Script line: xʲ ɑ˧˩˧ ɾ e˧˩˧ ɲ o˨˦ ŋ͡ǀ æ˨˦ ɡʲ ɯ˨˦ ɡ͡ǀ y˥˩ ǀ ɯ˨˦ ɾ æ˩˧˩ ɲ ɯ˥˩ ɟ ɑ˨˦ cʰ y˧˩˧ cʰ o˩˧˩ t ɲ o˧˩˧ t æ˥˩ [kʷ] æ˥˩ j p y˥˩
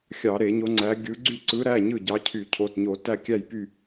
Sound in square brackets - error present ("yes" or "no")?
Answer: yes